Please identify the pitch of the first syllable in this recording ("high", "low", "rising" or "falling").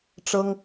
high